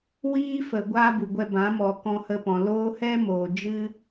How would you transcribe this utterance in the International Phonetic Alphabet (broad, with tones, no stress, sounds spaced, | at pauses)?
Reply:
w iː˦ f ə˨ ɡʷ aː˦ b u˨ ɡʷ ɛ˧ b ã˨˦ m ɔ˨ k ɔ̃˧ h ə˧ p ɔ̃˨ l oː˦ h ɛ˦ m oː˨ d͡ʒ ɨ˦